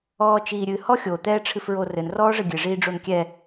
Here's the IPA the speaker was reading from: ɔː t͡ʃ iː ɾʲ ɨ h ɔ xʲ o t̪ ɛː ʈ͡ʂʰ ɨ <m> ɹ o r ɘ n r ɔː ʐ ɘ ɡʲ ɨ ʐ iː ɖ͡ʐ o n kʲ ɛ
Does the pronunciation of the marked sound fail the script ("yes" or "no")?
yes